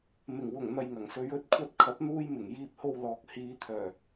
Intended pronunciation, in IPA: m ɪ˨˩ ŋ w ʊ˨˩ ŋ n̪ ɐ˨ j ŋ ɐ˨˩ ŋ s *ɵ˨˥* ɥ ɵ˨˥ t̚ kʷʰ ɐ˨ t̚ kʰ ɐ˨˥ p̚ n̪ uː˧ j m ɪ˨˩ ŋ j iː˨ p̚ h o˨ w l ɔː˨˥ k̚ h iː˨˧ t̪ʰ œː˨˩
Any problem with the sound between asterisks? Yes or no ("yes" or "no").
yes